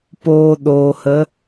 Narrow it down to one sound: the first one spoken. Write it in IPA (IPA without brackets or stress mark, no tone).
p